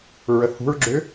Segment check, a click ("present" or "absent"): present